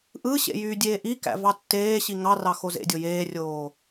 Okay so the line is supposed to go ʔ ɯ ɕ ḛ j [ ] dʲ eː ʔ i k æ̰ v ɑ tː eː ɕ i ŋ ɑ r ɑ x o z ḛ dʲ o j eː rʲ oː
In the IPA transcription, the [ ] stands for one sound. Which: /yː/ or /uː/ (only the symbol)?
yː